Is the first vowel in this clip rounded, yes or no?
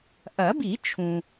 no